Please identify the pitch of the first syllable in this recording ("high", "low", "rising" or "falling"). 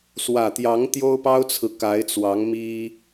low